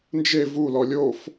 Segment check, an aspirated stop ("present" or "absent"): absent